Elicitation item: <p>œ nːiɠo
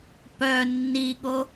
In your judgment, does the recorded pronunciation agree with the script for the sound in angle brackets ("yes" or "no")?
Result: yes